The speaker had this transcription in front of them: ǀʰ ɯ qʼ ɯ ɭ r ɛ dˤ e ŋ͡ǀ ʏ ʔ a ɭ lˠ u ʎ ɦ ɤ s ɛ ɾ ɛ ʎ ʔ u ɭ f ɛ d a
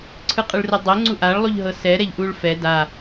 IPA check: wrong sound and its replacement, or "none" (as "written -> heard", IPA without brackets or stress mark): ʏ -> u